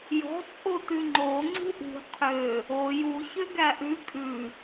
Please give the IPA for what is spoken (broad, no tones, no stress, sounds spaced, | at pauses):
j ɔ̤ t͡sʼ o t ʉ ŋ͡ǃ o ŋ͡ǀ ṳ ʔ ṳ qʰ ø | o j u ç ø ɡ æ ʔ ʉ kʼ ʉ